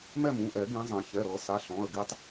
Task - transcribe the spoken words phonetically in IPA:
mɛ˥˨mũ˩˧˩ʔɛ˨˩˦ ɡĩ˨˦zˤã˨˩˦ çɛ˩˧˩ɾɤ˨˩˦sa˩˧˩ɬɔ̃˩˧˩ə̯ ɡi˦tˤ

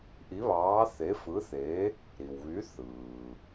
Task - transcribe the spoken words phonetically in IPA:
ʔi˨˥βɑː˨˥ θe˨˥fɯ˨˥θe˨˥ | ɾi˩wβy˨˥ θɯː˩

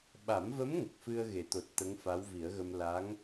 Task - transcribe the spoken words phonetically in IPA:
ɓa˨˩˦mvə˧˥m ŋə˨˩k̚fɨ˧ə̯ɣe˨˩˨t̪o˨˩t̚ t̪ə˧˥ŋfa˧˥wvi˨˩˦ə̯ɣə˧m la˧˥ŋ

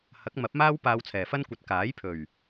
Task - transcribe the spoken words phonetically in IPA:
hɐ˨˥k̚mɐ˨˥p̚maː˥w paː˧wt͡sʰɛː˨˩fɐ˥nkʷɐ˨t̚ kaː˨˥jpʰɵ˨˩ɥ

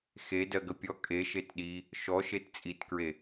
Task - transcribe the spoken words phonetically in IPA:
xedɜɡə pʲɔ kʼeʃet ɗi | ʃɔʃet t͡sʼitkɹe

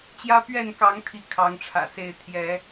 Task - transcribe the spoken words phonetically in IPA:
t͡ɕjä˦pɥɛ˥˨nkɑ˨˦ŋ t̪ʰi˥˨kʰɑ˨˦ŋʈ͡ʂʰä̰˨˩se˥˨ɪ̯ t̪ʰjɛ˨˦

